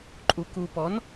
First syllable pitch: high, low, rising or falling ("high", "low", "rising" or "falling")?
low